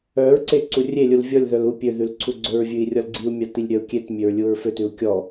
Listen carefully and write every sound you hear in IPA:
œ ɹ ǀ e ǀ u rʲ e lʲ u l vʲ ɔ lʲ ð œ l u pʲ ø ð ʉ l ǀʰ u ɡ͡ǀ ɵ ɹ vʲ ʉ i̯ rʲ ɔ l ɡ͡ǀ i u̯ mʲ ɑ t i lʲ ɾʲ œ u̯ kʲ e t mʲ ø ɹ lʲ u ɹ f ø t ʉ u̯ kʲ ɔ

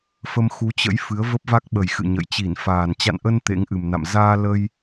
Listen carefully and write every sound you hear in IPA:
f ə˧ m x u˨˦ t͡ɕ ə̰˧˥ j f ɨ˨˦ ə̯ v ə˦˥ p̚ v a˦˥ k̚ ɓ ə˨˩ j x ɨ̰˧˨ ɲ ə̰˧˨ j t͡ɕ i˧˩ n f aː˨˩ n t͡ɕ a̰˧˨ n ʔ ə˧ n t̪ ḛ˧˥ ŋ ʔ ɨ˨˩ m n a̰˧˨ m z aː˧ l ə˧ j

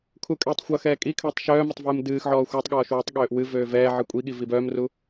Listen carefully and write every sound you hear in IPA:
kʰ u kʼ ɛː tˤ xʷ ʌ x ɛː kʼ i kʰ øː tˤ ʃ œː m ʌ tˤ v ɨː m d ɨː x ʕ ɔː xʷ œ tˤ ɠ ɔː ʃ w ɛ tˤ ɠ øː ʔ w ɨ v øː v ɛː ʕ ɨ kʷʼ i ɠ i v i b œː m r u

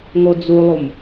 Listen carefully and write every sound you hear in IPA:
ŋ o d͡z u lˠ u m

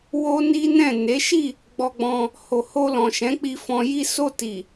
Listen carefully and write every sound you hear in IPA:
w o˦ n i˦ n ɛ̃˦˨ n e˨˦ ʃ i˦˨ | ɡ͡b ɔ˧ ɡ͡b ɔ̃˧ | h o˨ h o˧ l ɔ̃˨ ʃ ɛ̃˨˦ k͡p i˧ f ɔ̃˧ j i˦ s o˦˨ t i˨

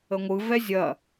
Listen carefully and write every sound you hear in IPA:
ə ŋʷ ɯ v ɛ zʲ ɐ

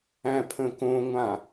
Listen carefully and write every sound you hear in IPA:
æ̃ pʰ ə̃ k õ ŋʷ ã

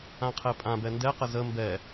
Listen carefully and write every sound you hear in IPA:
ã qʰ ɛ pʼ ã b ɛ n d ɛ q ə z ə m b ɛ

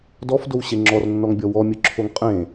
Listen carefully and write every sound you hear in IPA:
d ɔ f d o w ɕ e ŋ͡ǁ ɔ r nː ɔ ŋ bʲ ɔ w ɔ mʲ ɯ ǁʰ o ŋ qʼ ẽ

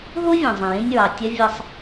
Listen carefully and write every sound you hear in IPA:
ɦ u˥ vʲ õ˩ zˤ ẽ˩ j ĩ˧ nʲ ɹ ɑ˩ tʲ ɐ˥ vʲ ʌ˧ sˤ

